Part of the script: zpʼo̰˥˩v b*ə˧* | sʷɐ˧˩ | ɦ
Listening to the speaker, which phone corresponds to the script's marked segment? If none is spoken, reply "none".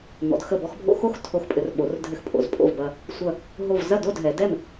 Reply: ɐ˧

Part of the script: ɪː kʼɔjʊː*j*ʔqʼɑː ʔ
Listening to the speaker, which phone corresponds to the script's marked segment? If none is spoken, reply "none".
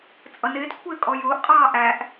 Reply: none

